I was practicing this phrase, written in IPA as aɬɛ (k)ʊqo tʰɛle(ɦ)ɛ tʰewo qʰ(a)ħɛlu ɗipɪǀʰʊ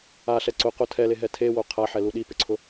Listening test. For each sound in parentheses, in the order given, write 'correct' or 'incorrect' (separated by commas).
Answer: incorrect, correct, correct